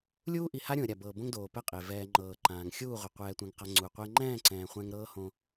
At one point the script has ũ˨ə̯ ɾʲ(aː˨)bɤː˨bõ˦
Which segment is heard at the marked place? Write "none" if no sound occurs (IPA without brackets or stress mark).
a˨